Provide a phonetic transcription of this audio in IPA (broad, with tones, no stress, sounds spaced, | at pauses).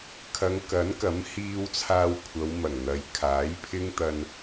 kʰ ɐ˨˧ ŋ k ɐ˨˥ n k ɐ˨˥ m h iː˧ w t͡sʰ aː˧ w kʷʰ ɐ˨˧ w m ɐ˨˩ ŋ n̪ ɐ˨˧ j kʰ aː˨˥ j pʰ ɪ˥ ŋ t̪ ɐ˧ n